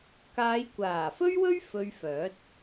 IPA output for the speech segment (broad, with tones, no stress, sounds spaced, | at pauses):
k aː˨˧ j kʷ aː˨˩ f ɵ˥ ɥ w ɵ˥ ɥ f ɵ˧ ɥ f œː˨˥ t̚